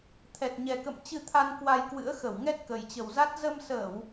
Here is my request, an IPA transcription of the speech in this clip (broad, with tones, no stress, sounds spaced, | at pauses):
t̪ʰ ɛ˨˩ t̚ ɲ ɛ˨˩ k ə̰˧˨ m t͡ɕ ɨ˧ t̪ʰ a˧ n k w a˧ j k w ɨ̰˧˥ ə̯ x ə˧˩ w ŋ ɛ˦˥ t̚ k ə˨˩ j t͡ɕ ə˨˩ w z a˦˥ t̚ z ə˧ m s əː˧˩˨ w